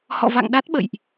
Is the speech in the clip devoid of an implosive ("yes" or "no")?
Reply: no